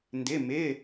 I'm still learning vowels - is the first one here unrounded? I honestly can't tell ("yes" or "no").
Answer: yes